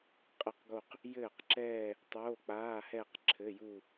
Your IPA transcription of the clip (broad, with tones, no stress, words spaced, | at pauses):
qʼə˥˩qɡo˥˧q | jɘː˥˩qǁɛː˥˧ | tˤoː˧˥˧k͡paː˧˥˧hɛ˥˧q ǁʰɘ˧˥˧ju˥˧